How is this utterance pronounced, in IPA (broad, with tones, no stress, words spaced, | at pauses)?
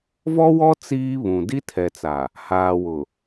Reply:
vɔ˦wɔ˦ t͡siː˦βũ˨ di˦tʰɛ˨t͡sa˨ | haː˨wʊ˨